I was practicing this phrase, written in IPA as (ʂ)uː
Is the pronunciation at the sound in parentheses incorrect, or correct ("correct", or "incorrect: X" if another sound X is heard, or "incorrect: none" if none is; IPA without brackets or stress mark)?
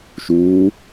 incorrect: ʃ